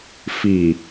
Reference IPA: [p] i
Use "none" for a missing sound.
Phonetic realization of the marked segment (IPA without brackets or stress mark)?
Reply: f